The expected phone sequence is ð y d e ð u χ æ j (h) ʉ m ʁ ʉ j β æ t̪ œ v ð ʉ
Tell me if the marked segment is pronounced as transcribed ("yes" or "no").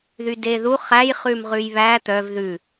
no